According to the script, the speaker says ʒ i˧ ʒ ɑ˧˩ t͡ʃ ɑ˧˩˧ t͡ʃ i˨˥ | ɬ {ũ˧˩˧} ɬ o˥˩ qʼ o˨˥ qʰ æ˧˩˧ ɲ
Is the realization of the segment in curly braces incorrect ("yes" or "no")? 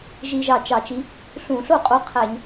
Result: no